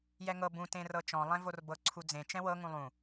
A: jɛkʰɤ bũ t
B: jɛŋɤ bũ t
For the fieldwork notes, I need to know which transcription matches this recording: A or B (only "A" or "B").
B